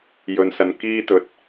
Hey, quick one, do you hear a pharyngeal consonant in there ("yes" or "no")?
no